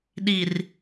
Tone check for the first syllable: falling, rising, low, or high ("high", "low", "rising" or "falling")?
low